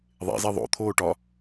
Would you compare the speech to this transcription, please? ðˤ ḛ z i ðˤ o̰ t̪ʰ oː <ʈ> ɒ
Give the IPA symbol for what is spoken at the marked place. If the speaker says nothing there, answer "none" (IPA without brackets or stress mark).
ʈ